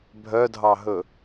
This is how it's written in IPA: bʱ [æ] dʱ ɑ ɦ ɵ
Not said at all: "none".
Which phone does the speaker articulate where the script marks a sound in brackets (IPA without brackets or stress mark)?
œ